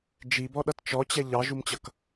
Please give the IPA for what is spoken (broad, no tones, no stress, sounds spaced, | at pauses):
d͡ʒ i b ɔ ɗ ʌ t t͡ʃ ɔ t͡ɕ ɛ ʎ ɑ ʒ u m t͡ɕ ʌ k